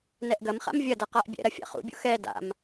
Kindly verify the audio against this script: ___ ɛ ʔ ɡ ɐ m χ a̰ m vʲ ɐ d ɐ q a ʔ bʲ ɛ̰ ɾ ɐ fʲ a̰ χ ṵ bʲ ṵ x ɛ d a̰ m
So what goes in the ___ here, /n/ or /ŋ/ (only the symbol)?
n